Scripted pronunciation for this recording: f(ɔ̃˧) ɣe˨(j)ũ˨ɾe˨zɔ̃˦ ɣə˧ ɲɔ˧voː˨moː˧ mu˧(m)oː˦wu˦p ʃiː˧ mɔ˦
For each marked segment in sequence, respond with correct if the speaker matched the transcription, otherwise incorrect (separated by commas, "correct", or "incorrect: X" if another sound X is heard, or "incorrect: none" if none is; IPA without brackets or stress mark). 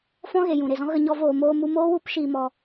correct, correct, correct